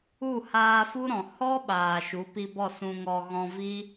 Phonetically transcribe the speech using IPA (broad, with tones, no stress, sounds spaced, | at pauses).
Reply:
u˦˨ h aː˧ f u˦ ɾ ɔ̃˨ h ɔ˦ ɓ aː˨ ʃ u˨˦ p i˧ b ɔ˦˨ s ũ˧ ŋ ɔ˧ ɣ ɔ̃˧ v i˦